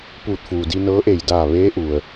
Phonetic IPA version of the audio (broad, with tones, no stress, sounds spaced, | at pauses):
p uː˧˩ t̚ f uː˩ d i˧ n ɤː˧˥ ʔ e˧˩ j d aː˧˩ ʋ eː˧˥ ʔ u˩ ə̯